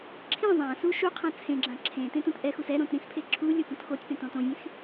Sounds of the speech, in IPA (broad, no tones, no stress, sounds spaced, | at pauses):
ǁʰ ĩ zˤ ã s u ʃ u qʰ ã t͡sʰ ẽ ɡ͡ǁ ã ǁʰ ẽ t ẽ t ũ t ʔ ɛ x u s ɛ ɾ õ t ɾ ĩ s pʰ e ǁʰ u lʲ o p ũ t x o tʲ p ẽ t õ t õ vʲ ẽ x